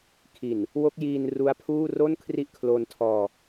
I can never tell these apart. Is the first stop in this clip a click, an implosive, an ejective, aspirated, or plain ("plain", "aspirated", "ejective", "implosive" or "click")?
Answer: aspirated